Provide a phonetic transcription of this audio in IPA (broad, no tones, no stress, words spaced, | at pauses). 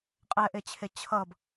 qʼɛʔet͡ɕʰe t͡ɕʰʌb